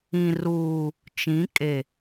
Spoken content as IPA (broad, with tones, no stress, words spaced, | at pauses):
ĩ˨ruː˨ | t͡ʃĩ˨˦kʼe˨